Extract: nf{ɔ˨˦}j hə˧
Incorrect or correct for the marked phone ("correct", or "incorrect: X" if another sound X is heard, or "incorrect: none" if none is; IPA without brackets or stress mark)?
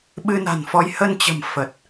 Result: correct